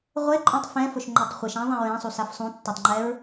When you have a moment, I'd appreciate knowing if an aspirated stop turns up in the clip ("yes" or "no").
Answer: no